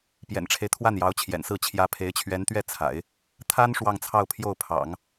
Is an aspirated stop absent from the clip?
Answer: no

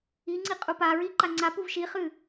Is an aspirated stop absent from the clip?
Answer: yes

